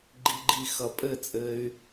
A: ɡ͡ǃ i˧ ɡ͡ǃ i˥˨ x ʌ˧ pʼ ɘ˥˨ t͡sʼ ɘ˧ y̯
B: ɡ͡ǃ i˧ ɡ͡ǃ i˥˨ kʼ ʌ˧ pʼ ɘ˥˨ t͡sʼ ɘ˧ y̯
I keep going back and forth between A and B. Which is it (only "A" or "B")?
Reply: A